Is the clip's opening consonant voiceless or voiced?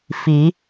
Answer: voiceless